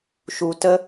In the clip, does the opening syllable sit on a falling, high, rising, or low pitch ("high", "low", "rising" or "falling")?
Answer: low